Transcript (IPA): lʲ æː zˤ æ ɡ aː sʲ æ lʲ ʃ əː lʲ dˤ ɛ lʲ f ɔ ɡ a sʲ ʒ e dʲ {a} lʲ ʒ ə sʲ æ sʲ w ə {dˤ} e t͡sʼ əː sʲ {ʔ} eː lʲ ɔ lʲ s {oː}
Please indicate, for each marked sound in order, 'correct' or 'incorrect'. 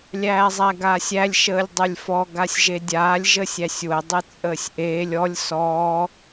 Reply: incorrect, correct, correct, incorrect

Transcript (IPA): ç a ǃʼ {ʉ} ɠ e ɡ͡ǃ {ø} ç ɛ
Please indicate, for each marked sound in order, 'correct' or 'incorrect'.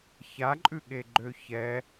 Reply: correct, correct

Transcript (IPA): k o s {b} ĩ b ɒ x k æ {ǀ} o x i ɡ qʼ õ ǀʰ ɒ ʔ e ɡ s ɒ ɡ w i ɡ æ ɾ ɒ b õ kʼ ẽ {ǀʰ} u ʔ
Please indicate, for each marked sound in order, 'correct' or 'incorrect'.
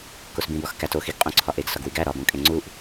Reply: correct, incorrect, incorrect

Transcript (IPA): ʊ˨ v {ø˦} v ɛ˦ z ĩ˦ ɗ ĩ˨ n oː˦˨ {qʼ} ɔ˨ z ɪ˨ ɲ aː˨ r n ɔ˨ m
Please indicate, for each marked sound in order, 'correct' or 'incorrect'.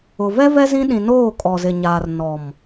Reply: incorrect, incorrect

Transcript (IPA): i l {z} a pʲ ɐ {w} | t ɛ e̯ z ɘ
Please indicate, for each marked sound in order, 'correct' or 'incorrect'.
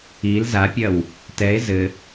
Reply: correct, correct

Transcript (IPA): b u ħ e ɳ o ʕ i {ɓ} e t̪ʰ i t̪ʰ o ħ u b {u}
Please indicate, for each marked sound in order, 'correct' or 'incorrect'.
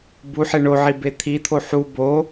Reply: incorrect, incorrect

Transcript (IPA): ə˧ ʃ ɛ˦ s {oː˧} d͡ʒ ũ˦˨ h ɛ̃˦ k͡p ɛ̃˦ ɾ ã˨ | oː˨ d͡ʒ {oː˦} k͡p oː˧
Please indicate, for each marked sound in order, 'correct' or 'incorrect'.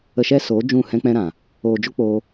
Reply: incorrect, incorrect

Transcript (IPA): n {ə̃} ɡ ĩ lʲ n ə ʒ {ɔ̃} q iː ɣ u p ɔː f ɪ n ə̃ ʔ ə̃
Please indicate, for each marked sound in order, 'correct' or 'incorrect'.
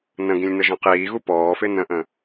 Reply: correct, correct

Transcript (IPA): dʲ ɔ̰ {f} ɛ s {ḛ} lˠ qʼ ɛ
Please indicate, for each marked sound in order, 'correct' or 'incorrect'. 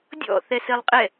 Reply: incorrect, incorrect

